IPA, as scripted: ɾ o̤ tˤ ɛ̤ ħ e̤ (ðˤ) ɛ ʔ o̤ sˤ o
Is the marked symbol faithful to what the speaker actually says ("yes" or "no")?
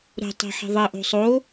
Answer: yes